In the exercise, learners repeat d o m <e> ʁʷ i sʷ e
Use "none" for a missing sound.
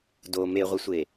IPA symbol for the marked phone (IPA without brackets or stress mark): e